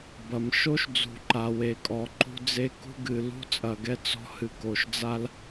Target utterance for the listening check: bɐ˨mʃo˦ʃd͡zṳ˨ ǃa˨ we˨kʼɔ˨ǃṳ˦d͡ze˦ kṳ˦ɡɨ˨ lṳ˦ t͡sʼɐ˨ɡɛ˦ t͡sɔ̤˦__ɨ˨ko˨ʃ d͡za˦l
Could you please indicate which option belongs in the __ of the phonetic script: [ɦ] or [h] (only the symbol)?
h